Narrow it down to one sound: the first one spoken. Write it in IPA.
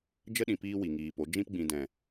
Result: d͡ʒ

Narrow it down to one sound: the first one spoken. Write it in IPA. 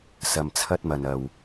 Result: s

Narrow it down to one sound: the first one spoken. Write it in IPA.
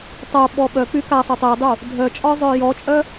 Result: tˤ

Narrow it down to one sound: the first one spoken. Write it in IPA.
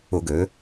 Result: ʊ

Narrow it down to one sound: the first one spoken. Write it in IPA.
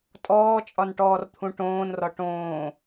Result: tʼ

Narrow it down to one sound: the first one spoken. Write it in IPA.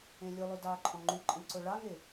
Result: ẽ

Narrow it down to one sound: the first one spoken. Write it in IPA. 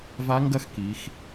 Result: v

